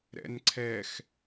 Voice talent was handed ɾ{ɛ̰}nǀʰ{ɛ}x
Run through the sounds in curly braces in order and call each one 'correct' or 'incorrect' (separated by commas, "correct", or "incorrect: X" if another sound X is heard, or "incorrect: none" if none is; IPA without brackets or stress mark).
correct, correct